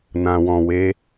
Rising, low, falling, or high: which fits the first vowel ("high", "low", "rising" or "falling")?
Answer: low